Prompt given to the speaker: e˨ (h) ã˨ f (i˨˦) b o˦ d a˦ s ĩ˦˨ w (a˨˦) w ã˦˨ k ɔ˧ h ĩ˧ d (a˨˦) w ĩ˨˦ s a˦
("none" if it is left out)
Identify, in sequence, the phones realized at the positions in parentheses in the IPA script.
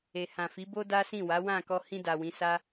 h, i˨˦, a˨˦, a˨

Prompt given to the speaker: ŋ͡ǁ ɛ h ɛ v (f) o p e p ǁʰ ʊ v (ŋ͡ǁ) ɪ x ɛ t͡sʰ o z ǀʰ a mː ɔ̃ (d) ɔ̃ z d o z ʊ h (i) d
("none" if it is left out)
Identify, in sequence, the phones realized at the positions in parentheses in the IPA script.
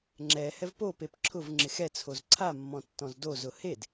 p, ŋ͡ǁ, tː, e

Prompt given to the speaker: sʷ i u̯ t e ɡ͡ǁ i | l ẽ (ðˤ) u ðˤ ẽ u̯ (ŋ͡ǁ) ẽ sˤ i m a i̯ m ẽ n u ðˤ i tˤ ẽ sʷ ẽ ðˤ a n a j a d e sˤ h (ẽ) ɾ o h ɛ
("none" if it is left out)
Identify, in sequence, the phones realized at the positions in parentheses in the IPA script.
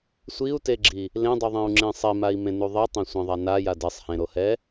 dˤ, ŋ͡ǁ, ẽ

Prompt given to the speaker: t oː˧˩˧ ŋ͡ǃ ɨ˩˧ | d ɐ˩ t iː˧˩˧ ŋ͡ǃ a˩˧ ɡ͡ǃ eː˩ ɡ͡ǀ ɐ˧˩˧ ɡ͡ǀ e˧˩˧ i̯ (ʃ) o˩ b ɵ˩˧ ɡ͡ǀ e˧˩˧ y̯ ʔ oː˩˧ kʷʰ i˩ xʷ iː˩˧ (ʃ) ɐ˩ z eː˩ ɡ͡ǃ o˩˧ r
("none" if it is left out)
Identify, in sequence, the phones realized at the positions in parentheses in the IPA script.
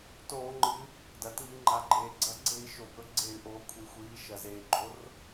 ʃ, ʃ

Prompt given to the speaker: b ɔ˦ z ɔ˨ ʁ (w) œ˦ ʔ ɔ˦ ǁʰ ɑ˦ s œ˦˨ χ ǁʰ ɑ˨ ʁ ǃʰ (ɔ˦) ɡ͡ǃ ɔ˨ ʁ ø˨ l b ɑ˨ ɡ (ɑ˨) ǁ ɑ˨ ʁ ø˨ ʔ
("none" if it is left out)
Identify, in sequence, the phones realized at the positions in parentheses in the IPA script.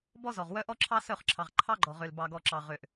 w, ɑ˦, ɔ˨

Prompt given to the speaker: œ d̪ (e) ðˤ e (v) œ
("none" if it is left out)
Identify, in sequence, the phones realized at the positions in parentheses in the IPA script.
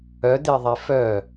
e, f

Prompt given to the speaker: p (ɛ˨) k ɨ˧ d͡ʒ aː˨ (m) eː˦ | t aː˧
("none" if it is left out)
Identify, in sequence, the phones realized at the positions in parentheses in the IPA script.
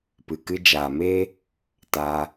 ɨ˨, m

